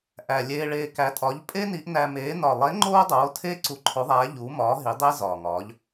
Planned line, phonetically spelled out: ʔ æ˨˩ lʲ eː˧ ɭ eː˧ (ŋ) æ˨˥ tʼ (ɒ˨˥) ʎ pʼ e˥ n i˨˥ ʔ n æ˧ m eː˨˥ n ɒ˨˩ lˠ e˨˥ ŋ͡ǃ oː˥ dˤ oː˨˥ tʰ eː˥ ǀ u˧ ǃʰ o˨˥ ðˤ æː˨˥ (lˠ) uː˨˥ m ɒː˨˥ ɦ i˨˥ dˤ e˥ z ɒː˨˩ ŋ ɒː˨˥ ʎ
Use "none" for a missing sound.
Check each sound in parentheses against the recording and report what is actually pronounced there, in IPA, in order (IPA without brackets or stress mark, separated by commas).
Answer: k, ɒ˨˥, ʎ